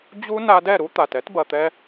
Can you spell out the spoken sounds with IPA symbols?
d͡ʑu˦ na˧dɛ˦˨ɾu˦ t̪a˨t ɛ˦tbɐ˨t̪ɛ˧

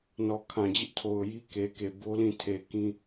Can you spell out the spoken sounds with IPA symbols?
nɔ˨kʰã˨d͡ʑɪ˦ʔtʰo˨ʊ̯ ji˦ke˨ke˨ bo˦lĩ˦˨tʰe˨ kĩ˦

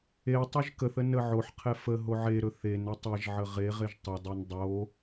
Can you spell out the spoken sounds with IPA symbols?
etˤoʒ kəθə nəʕoħqʰɛ fə ɦoʕeɾɵ θenə tˤeʒʕə ʁeʁeʒ tˤɵdˤen dˤo

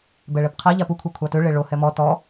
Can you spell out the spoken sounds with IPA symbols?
bɛɭɛpqʰa ʎapu kʷʰekʷʰatʏ ɭeɭo hɛmɔ tɔ

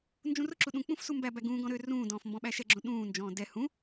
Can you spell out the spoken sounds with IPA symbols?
nd͡ʒũrʊǁu ɗũk͡pũf sumbæbæ ɡũːɡɔ̃ ɾø rũːdɔ̃ːf mbɔ̃ɓæʃɛɡ͡ǁõ ɗũːnd͡ʒɔ̃ː dɛ hũ

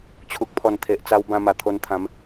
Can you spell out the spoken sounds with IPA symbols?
t͡ɕʰu˨k̚pʰɔ˨˩nt̪ʰe˨ʔt͡sa˧w bã˧ma˨˩t̪ʰo˧nt̪ʰã˨˦m

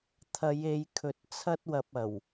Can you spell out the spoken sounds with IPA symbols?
t̪ʰɐ˨˧je˨˧jkʰɵ˨˥t̚ t͡sʰɐ˥t̚wɐ˧p̚ɐ˨˩w

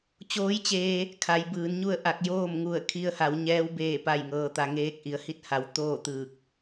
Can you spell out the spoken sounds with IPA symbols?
t͡ɕoː˧˥jt͡ɕeː˧ | kʰa˩˧jbɯː˩˧nɲu˥˨ə̯ ʔa˧˩k̚joː˥˨mŋu˧˩ə̯ kʰi˧ə̯ha˩˧wɲɛː˧˥w beː˥˨pa˥˨jŋɤː˧t̪a˧ ŋeː˧k̚ʔi˩ə̯hi˥˨t̚ha˩˧w t̪oː˥˨t̪ɯː˧˩k̚

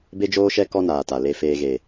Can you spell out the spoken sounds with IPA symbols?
be˦d͡ʒoː˦ʃɛ˦ kɔ˦naː˨ta˨ le˨feː˨ɣe˨

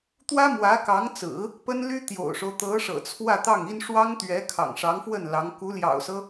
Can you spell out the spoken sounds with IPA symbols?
t̪wä˥mwä˧˥kɑ˧˥ŋt͡sɹ̩˨˩˦ | pə˥nly˥ t̪jo̰˨˩ʊ̯ʂo˦ʊ̯ t̪ɤ˧˥ʂɤ̰˨˩ t͡sʰwä˥˧t̪ɑ˥˩ŋi˥n ʂwɑ˥ŋt̪ɥɛ˧˥ kʰɑ̰˨˩ŋʂɑ˧˥ŋfwə˥˩n lɑ˧˥ŋ ku˧˥ljɑ̰˨˩ʊ̯sɤ˦

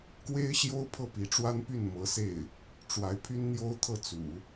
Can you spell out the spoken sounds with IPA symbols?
kwe˥ɪ̯ɕjo˥ʊ̯ pʰɤ˥˩pi˧˥ʈ͡ʂwa˥npy˥˩n mɤ˧˥se˥˩ɪ̯ | ʈ͡ʂwa˧˥ɪ̯pʰy˥n n̪jo˥ʊ̯t̪ʰɤ˥˩t͡sṵ˨˩˦

